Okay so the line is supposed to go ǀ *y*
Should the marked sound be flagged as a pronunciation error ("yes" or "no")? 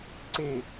yes